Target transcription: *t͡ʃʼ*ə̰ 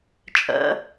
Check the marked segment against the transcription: correct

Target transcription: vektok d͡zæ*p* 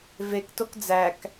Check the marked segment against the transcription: incorrect: k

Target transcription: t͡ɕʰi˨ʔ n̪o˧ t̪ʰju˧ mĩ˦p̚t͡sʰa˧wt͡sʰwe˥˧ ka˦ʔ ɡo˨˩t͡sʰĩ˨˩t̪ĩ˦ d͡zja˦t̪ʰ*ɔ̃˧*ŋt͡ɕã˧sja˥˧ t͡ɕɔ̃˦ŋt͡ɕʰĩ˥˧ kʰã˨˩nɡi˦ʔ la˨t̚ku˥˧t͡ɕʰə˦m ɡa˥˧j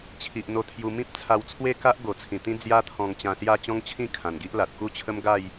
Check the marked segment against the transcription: correct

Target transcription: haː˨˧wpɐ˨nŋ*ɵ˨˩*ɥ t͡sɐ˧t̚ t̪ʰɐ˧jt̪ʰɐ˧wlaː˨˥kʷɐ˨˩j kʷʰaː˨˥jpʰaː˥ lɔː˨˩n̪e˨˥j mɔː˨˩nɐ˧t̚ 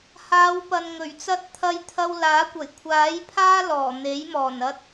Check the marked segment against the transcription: correct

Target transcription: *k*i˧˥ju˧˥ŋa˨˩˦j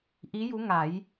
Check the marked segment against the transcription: incorrect: ʔ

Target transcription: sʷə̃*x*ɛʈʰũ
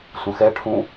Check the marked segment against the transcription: correct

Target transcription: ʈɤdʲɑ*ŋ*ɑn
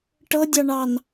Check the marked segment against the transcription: incorrect: ɳ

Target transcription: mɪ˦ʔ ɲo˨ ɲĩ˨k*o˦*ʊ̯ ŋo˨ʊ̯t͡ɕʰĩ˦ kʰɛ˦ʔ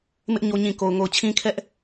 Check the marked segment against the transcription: incorrect: o˨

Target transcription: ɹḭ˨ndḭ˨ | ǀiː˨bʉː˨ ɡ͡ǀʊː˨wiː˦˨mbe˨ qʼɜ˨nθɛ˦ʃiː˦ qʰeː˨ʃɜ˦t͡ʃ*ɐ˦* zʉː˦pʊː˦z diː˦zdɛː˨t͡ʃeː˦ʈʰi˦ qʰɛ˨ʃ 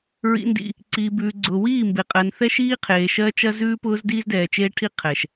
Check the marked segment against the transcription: correct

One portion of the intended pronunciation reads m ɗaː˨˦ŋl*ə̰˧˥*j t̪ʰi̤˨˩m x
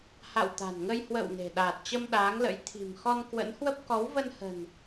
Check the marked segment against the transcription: correct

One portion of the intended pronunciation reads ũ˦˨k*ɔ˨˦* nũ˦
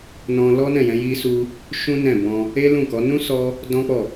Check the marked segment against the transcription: correct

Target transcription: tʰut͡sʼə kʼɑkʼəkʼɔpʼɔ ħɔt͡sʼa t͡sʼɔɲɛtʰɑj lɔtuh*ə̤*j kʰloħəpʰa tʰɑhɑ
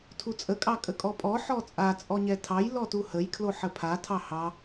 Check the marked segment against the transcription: incorrect: ə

